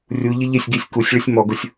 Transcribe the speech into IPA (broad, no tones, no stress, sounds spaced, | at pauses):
rʲ u ʎ ɪ ʎ ɪ sʲ ɡ i sʲ k u sʲ ɭ ɪ sʲ m ɔ ɡ ʊ sʲ